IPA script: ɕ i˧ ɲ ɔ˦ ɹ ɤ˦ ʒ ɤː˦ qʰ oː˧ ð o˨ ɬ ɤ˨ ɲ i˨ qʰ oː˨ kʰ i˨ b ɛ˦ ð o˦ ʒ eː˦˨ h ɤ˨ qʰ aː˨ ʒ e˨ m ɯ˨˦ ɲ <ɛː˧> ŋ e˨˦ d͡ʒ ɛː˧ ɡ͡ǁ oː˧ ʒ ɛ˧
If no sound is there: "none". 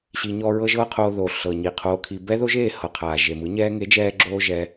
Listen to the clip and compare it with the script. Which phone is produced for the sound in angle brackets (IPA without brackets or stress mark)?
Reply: ɛː˧